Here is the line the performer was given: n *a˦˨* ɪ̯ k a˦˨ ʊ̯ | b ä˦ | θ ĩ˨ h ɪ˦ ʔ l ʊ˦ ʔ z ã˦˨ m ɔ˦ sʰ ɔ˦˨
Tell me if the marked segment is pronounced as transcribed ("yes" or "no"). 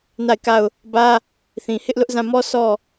yes